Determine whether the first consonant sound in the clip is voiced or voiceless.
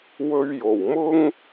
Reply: voiced